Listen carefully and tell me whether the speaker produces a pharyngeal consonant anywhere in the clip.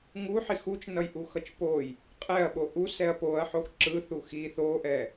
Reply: yes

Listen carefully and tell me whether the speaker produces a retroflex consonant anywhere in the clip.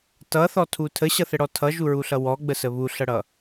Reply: yes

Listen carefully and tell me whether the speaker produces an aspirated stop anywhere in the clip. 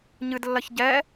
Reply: no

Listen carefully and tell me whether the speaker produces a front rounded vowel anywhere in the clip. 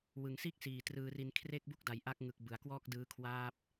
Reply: no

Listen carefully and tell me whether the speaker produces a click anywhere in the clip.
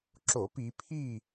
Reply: yes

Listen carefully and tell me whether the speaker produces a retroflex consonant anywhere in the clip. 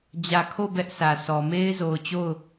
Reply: no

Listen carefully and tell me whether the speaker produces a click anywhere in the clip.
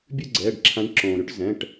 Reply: yes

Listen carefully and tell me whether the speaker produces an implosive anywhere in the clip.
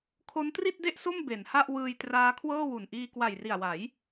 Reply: no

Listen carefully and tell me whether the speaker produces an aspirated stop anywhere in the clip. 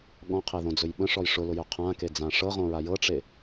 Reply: yes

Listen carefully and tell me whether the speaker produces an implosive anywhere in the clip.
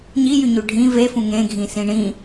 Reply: no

